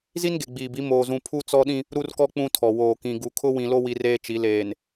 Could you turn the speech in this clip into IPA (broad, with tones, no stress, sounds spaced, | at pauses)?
z i˦ n ɡ e˨ ɡ͡b iː˨ b i˨˦ m oː˨ z ũ˨ pʰ u˦ t͡s ɔ˦ ɗ ĩ˦ | ɾ u˦ r k ɔ˦ k͡p ũ˦ tʰ ɔ˨ w oː˨ k ĩ˨ ɡ u˨ kʰ ʊ˦ w ĩ˨ l o˦ w i˦ r eː˦ t͡ʃ i˨˦ l eː˨ n